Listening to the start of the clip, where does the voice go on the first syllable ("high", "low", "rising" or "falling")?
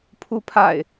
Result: rising